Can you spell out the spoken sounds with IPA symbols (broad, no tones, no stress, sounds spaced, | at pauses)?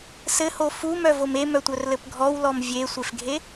s ɘ h o f u m œ v o m e m œ tʷ œ r l ɘ p ɡʱ ɔ w l ɔ m vʲ e sʷ e f ɡʱ e